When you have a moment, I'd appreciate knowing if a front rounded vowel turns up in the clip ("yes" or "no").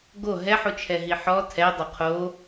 no